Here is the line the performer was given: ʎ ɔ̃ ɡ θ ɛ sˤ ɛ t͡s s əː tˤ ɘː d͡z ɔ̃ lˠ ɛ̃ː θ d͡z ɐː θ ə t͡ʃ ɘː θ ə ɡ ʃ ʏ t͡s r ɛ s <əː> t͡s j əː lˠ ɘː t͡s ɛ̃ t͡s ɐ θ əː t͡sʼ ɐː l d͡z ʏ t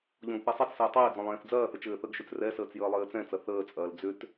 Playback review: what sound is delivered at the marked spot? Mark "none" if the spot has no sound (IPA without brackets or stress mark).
əː